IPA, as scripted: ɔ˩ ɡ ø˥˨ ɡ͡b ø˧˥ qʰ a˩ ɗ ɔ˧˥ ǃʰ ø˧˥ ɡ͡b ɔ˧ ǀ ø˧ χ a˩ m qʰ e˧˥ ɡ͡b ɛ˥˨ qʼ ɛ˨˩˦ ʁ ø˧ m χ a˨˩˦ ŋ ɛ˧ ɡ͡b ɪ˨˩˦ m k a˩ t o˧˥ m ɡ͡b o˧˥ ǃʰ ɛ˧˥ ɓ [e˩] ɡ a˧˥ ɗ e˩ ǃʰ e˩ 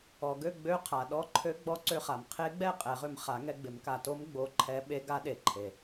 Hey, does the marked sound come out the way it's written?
no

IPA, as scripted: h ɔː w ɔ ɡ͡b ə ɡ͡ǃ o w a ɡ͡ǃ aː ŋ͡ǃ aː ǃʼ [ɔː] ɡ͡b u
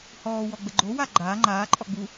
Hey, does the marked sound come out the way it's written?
no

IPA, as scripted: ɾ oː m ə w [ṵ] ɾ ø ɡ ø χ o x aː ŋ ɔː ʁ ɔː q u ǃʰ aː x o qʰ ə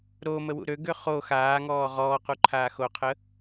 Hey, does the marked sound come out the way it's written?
yes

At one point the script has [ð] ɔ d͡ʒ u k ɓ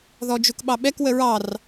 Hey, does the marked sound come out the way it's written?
yes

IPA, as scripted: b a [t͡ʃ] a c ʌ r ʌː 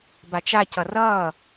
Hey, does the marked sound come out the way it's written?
yes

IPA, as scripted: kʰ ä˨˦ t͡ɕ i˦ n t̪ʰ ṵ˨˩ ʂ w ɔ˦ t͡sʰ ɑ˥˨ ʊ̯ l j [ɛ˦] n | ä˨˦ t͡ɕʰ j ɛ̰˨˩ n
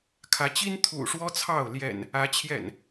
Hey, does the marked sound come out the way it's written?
no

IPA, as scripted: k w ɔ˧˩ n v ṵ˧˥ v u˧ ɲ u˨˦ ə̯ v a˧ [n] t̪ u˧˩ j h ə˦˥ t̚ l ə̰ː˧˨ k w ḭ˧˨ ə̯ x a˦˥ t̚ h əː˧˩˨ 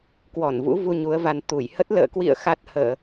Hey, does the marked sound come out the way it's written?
yes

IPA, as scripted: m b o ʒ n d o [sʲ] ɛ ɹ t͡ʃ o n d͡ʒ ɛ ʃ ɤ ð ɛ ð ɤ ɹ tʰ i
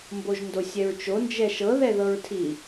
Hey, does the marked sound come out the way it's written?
yes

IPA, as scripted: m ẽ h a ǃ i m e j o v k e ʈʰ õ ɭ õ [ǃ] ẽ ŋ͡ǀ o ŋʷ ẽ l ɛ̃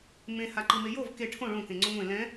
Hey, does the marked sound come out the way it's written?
no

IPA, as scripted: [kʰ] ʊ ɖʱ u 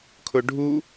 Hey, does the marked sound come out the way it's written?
yes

